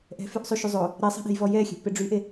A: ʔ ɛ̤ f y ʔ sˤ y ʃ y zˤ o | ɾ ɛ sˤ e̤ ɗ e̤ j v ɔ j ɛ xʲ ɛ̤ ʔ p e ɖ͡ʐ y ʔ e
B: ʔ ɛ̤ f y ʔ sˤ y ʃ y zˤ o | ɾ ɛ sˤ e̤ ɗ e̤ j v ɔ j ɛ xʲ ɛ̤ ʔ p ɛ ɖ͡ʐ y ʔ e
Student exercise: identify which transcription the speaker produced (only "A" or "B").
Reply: A